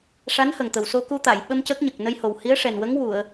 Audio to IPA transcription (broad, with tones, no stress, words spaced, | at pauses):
ʂa˧˥nhə˨˩ŋt̪ə˨˩w so˧ku˧t̪a˨˩˨jɓə˧m cə˦˥k̚ ɲə˨˩k̚nə˧jho˨˩w hi˧˥ə̯ʂɛ˨˩n wə˧˥ŋwu˨˩˨ə̯